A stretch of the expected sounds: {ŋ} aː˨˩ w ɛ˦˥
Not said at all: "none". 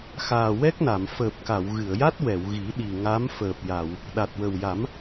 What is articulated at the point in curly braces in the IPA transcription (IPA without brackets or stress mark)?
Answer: x